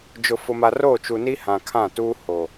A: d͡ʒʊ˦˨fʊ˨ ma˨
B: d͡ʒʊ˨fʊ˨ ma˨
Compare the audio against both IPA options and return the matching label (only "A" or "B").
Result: B